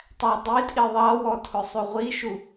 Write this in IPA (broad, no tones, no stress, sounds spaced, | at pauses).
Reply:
tˤ æ dˤ i tʼ i ðˤ ɑ w ɔ tʰ ʊ sˤ u ʁʷ i ʃ u